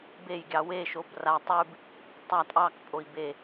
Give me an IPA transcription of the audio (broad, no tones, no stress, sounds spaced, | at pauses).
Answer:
b e j ɡʲ ɑ w e ʃ o b r a tˤ ʉ b | tˤ a tʼ ɑ k pʼ o i̯ b e